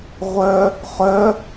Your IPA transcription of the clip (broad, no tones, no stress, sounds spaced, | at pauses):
ʁʷ œ | χ œ